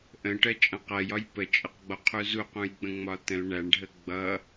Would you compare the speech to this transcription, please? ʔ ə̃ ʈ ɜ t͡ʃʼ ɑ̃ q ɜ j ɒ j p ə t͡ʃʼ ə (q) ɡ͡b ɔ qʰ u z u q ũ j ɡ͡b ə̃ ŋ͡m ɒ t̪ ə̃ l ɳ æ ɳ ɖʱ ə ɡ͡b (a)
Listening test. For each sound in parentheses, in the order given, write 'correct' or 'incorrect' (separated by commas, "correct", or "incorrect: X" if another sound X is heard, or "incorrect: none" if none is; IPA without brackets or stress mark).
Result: correct, incorrect: ʌ